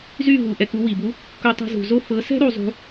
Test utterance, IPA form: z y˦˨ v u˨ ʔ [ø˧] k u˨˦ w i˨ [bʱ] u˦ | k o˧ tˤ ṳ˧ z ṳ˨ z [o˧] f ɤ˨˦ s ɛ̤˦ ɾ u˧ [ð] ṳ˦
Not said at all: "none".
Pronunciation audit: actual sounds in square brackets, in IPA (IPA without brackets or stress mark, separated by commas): ɛ˧, b, o˦, zˤ